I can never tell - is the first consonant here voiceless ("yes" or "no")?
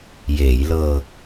no